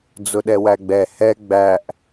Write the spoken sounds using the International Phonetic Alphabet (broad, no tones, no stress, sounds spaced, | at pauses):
d͡z ʊ ɗ ɛ w æ ɡ͡b ɛ h ɛ ɡ͡b æ ʔ